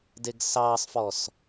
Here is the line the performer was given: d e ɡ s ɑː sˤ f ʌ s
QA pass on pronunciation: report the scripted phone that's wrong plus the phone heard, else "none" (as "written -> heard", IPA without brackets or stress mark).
ʌ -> ɔ